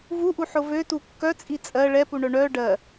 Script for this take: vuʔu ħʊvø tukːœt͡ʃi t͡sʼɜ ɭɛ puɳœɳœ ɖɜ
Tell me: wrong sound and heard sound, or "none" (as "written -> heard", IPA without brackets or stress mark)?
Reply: t͡ʃ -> t͡sʼ